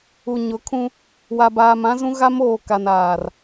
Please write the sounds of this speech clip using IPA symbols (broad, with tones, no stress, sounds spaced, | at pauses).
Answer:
u˨ ɲ ʊ˨˦ kʰ ũ˦ | w a˨ b aː˨ m ã˦ z ũ˦ ɣ a˦ m oː˨ k a˨ n aː˨ r